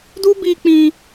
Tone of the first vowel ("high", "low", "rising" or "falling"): high